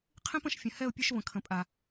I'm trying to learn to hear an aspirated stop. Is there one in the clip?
yes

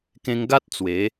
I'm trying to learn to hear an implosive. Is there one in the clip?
no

